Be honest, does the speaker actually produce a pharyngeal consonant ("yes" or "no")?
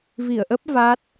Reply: no